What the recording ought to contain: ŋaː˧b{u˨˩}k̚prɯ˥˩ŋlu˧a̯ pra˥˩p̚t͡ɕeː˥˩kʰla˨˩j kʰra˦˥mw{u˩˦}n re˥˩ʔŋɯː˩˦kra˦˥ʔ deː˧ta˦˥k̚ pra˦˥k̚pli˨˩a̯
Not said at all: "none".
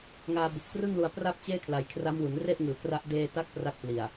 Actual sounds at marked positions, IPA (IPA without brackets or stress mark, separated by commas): u˨˩, u˩˦